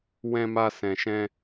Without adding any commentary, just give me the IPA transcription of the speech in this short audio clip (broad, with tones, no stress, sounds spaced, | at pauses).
w ɛ̃˦ m a˦ s ɛ̃˧ ʃ ɛ̃˦